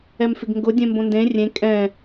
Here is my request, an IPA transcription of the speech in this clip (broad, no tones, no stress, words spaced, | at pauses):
ɛmfɪɡŋɡʊ dʲɛ̃mbõndẽ rʲẽ kʼɛ̃